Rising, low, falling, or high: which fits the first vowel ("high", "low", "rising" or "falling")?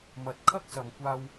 low